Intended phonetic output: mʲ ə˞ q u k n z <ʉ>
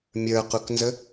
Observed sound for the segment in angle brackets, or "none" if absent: ə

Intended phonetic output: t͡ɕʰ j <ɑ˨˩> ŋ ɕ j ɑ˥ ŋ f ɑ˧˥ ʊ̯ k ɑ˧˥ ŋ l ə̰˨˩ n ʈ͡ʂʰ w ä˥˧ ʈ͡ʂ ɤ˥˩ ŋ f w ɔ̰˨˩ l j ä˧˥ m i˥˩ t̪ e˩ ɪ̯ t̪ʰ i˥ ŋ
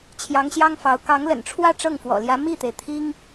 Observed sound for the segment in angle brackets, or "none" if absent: ɑ˧˥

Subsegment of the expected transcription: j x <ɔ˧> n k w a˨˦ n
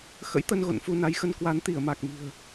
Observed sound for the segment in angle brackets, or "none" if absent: ə˧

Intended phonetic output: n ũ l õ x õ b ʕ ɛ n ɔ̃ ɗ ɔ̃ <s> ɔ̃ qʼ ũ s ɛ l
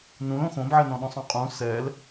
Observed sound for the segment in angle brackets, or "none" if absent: sˤ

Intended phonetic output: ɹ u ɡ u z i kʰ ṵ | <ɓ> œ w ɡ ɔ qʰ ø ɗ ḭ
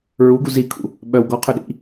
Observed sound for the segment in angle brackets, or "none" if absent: ɓ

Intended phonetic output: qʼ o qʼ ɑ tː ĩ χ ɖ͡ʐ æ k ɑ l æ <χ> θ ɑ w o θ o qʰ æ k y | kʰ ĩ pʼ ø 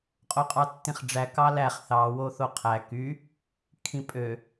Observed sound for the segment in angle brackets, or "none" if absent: χ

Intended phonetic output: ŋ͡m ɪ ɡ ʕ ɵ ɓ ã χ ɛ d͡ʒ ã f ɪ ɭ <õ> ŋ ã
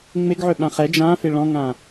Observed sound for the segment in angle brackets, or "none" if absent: ɔ̃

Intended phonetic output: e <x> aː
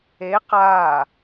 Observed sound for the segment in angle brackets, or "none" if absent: q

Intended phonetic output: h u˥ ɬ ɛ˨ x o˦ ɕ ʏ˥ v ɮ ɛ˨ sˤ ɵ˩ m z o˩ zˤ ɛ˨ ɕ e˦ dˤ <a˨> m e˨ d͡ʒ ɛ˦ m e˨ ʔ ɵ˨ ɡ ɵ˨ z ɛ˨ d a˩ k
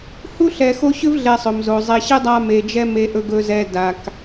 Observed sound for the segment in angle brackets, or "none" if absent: a˦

